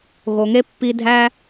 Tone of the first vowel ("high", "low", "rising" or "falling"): low